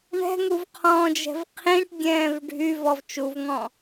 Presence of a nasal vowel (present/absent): present